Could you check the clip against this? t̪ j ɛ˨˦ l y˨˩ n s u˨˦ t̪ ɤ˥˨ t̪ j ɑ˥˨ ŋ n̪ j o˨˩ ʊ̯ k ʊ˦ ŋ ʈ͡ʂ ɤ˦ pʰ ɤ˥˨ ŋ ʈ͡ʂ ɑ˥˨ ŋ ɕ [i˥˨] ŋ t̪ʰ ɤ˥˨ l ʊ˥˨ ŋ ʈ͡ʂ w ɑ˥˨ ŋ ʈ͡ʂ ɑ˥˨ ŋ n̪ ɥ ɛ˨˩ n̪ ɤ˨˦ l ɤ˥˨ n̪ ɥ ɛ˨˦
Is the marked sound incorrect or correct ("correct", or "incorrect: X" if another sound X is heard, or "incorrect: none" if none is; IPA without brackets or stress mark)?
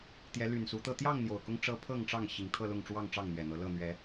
incorrect: i˨˩